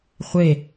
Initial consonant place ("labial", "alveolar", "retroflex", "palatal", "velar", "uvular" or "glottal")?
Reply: uvular